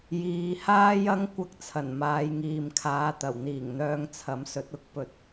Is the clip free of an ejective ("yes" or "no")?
yes